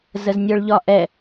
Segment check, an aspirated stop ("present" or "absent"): absent